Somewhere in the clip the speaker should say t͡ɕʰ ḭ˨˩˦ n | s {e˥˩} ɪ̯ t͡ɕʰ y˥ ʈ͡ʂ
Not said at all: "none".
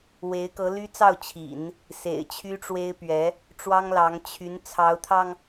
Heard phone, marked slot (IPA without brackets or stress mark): ḛ˨˩